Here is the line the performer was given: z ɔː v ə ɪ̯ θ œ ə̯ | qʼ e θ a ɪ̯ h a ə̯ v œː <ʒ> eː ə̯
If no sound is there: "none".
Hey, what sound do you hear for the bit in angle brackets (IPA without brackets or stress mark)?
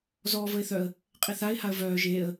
ʒ